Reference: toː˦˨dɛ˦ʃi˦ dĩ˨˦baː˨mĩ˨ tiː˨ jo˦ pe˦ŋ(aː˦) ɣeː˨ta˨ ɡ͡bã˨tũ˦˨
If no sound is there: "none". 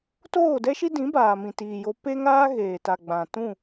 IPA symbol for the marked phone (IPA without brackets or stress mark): aː˦